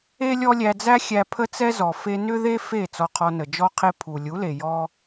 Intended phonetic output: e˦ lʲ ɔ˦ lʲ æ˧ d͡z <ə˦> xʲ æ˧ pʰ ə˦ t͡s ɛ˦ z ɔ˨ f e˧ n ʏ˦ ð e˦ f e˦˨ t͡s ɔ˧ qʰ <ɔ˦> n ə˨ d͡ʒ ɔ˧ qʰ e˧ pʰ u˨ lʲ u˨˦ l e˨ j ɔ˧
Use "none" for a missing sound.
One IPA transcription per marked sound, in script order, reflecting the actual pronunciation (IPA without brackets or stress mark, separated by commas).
æ˦, ɔ˧